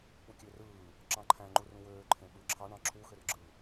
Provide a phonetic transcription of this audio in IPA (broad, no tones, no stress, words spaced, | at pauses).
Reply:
k͡pukʲørɯː | ǁɑ̃ǃʰæ̃ ŋ͡ǃurũwøː ǃʰẽɓɯǁʰɑɳ ɑ̃ǁʰu xørɡ͡ǁɯ